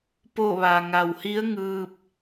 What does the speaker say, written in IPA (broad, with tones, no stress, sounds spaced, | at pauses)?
p o˥˨ ʋ a˩ ŋ a˩ w h i˧˥ ə̯ ŋ ɯː˧ p̚